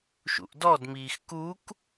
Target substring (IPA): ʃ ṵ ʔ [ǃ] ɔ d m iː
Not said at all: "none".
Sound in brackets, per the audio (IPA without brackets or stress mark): d